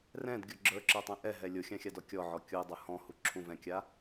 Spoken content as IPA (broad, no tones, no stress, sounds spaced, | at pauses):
r ɛ̃ d ɡʲ o ɡ͡ǁ ə˞ ǁ ə˞ tˤ ɛ̃ ʔ ɛ ɦ ɛ lʲ o xʲ ã xʲ a d ɔ kʲ ɔ ʕ ɔ kʲ u dˤ ʊ h ɔ̃ h u ǁʰ ũ v ɛ̃ kʲ a